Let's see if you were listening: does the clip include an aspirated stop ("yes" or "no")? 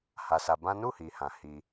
no